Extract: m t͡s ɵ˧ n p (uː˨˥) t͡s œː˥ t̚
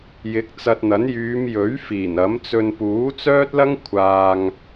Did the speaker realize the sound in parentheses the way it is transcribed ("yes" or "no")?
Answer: yes